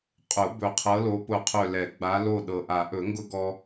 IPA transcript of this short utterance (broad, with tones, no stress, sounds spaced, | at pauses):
qʼ ʊ˨˩˦ b ɵ˨˩ qʰ ɤ˨˦ l o˨˦ p ʊ˦˨ qʰ ɵ˦˨ l ɛ˨˩˦ ɡ͡b a˨˦ l o˦˨ ɗ ɤ˨˩ ʔ a˨˩˦ ʔ ɵ˨˩˦ ŋ ɡ ʊ˦ ɡ ɔ˦